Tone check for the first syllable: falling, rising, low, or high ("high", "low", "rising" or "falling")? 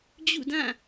falling